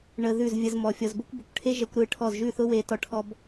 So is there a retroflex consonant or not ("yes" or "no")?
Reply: yes